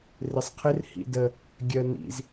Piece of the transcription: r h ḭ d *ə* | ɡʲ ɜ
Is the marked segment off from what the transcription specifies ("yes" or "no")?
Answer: no